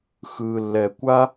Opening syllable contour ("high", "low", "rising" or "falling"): low